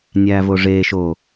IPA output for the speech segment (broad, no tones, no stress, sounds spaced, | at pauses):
nʲ æː v o ʐ eː ʃ o